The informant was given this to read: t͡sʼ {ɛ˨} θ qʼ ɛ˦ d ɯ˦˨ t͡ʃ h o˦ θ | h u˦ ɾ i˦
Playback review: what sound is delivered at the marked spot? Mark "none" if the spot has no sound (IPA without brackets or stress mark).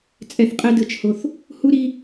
ɛ˧